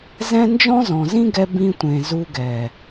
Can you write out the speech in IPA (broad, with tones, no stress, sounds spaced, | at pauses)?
z ɛ̃˦ n d͡ʒ ɔ̃˦ z ɔ̃˨ z ĩ˦ ɡ ɛ˧ b ĩ˧ tʷ ẽ˨ z u˧ ɡ ɛ˨